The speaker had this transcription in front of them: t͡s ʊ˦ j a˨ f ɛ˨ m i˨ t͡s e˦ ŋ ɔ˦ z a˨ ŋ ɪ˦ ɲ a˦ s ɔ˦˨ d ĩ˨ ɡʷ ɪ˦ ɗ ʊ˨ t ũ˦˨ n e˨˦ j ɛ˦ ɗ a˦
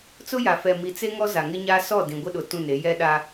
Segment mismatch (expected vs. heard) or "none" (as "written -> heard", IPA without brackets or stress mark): none